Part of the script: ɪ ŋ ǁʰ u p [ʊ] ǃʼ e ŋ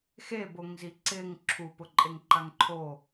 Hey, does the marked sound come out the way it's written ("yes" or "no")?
yes